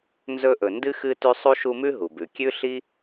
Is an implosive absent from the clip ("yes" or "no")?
yes